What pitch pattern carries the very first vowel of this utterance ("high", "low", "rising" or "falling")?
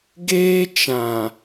high